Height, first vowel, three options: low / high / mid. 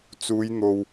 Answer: high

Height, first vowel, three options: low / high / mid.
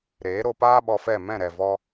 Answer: mid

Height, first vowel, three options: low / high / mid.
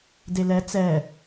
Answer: mid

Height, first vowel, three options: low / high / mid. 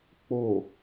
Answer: mid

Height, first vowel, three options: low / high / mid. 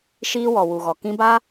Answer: high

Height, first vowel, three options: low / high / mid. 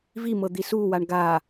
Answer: high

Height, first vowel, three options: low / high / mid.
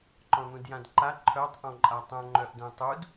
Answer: mid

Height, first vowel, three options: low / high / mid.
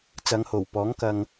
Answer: low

